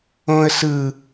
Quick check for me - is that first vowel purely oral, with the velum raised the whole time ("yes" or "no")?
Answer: no